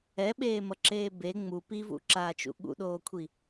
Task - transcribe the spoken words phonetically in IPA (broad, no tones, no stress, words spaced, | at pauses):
ɛɓeːmʌǁeː be ŋ͡mu pivṵǁaːt͡ʃṵ ɠṵɗoːkʷʰi